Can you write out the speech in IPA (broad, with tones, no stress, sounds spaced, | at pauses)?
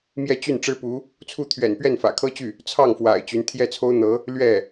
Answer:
m j ɛ˥˧ t͡ɕ y˥˩ n ʈ͡ʂ ɻ̩˥ p u˧˥ | t͡sʰ u˥˩ t̪ʰ ɥ ɛ̰˨˩ n p ɥ ɛ˥˩ n f ä̰˨˩ kʰ ɤ˥ t͡ɕ y˥˩ | t͡sʰ ɑ˥˩ ŋ f w a̰˨˩ ɪ̯ t͡ɕ y˧˥ n t̪ʰ j ɛ˥˩ t͡sʰ o˥ ʊ̯ n̪ ɤ˧˥ | l ɥ ɛ˥˩